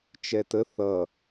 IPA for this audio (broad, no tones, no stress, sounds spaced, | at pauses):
t͡ʃ ɛ t ə θ ʌ